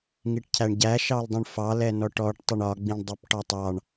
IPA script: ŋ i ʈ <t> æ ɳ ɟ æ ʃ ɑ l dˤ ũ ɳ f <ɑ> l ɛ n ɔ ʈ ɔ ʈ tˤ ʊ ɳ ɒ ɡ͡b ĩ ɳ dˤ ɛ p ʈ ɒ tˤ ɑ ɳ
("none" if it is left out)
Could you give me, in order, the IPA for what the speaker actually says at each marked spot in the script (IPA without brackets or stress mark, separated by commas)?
cʰ, ɑ